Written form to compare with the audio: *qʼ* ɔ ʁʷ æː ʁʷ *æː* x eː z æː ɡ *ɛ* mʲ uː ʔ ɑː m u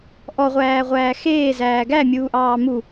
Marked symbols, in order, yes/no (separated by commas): no, yes, no